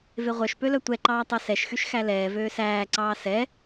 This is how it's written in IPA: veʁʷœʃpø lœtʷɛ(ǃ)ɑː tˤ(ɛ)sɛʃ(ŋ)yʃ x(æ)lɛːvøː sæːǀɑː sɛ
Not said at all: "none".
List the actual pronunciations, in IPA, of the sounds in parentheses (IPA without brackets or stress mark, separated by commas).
ǃ, œ, x, æ